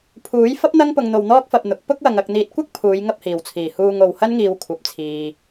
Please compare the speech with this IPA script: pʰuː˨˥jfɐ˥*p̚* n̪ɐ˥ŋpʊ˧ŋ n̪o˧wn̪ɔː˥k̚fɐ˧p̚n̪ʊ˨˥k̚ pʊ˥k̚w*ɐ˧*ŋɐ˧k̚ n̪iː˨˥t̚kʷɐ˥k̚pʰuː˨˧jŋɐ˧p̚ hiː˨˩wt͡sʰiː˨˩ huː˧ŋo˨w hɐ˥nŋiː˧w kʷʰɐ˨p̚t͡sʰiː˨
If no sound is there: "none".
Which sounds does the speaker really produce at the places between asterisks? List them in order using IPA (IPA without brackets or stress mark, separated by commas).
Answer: p̚, ɐ˧